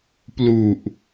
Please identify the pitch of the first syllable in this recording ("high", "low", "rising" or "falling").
low